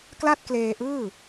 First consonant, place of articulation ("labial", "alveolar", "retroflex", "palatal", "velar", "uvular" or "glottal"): velar